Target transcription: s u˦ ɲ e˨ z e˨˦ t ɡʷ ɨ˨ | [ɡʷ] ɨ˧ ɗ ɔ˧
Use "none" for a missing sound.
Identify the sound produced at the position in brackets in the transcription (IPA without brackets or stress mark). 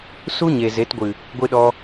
ɡʷ